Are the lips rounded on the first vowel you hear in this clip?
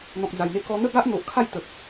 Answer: yes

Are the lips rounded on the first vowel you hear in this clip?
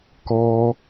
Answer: yes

